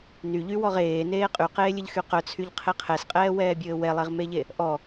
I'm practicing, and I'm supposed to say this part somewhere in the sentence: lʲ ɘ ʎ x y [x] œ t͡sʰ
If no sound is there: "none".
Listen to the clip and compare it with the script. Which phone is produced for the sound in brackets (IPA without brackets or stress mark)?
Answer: q